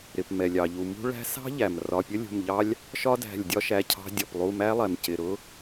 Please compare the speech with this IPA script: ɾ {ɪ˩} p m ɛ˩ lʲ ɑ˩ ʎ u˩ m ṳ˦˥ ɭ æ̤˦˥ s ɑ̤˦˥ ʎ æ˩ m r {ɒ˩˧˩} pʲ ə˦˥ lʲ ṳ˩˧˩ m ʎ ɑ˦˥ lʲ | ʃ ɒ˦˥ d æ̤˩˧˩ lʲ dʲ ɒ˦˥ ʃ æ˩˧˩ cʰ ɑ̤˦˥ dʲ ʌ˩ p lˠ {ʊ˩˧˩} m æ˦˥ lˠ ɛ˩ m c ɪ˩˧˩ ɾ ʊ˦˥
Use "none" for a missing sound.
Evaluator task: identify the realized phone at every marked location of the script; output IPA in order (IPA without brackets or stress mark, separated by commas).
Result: ɪ˩, ɒ˩˧˩, u˩˧˩